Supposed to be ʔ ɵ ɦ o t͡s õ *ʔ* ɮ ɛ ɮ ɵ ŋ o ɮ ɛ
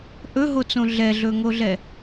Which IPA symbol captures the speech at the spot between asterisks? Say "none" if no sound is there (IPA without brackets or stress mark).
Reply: none